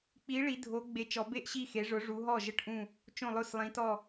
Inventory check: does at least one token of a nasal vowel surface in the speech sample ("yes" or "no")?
yes